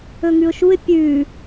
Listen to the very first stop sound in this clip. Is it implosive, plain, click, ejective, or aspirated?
plain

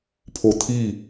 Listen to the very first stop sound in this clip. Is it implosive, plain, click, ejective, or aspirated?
aspirated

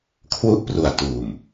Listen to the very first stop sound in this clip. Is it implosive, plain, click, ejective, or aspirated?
aspirated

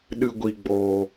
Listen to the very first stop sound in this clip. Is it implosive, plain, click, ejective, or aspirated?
implosive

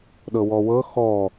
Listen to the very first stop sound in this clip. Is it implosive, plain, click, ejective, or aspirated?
implosive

